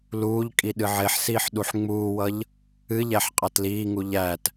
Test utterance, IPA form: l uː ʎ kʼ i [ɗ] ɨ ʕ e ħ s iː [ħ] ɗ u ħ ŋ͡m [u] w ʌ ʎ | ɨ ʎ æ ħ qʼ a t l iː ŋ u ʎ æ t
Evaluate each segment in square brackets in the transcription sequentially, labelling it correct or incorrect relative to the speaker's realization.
correct, correct, incorrect: uː

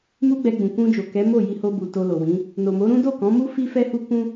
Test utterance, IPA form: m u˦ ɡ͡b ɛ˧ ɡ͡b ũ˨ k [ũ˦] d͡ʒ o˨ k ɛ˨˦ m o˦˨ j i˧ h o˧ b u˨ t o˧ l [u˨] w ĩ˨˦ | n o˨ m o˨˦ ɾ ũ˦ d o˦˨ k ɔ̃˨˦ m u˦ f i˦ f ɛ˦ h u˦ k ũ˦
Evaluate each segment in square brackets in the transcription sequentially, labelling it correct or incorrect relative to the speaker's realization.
incorrect: ũ˧, incorrect: o˨

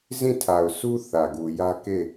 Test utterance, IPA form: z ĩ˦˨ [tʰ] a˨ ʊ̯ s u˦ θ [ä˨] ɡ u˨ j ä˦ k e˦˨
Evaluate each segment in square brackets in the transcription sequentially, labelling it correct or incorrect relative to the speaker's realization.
correct, correct

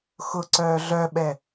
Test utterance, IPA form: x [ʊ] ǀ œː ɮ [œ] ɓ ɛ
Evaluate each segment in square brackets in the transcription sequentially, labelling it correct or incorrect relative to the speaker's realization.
correct, correct

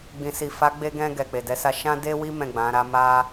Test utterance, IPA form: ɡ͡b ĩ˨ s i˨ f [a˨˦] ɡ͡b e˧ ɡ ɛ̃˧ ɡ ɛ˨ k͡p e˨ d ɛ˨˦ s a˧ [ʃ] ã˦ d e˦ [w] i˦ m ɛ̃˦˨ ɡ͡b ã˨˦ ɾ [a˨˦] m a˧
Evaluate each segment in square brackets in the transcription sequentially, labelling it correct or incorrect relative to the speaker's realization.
correct, correct, correct, incorrect: a˦

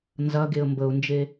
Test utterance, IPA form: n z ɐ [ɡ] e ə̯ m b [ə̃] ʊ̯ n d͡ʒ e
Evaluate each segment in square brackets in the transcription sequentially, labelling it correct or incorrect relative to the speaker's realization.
correct, incorrect: ə

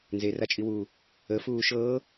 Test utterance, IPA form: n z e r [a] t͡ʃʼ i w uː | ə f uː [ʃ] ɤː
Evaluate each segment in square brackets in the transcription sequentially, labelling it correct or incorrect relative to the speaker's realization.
correct, correct

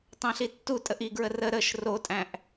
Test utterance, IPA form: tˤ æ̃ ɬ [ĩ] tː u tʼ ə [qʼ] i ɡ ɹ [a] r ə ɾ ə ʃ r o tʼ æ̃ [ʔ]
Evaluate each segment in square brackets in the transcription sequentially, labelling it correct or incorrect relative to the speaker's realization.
incorrect: i, incorrect: ʔ, incorrect: ə, correct

